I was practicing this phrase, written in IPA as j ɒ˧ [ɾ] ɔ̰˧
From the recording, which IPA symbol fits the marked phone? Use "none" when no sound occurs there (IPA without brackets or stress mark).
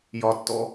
tː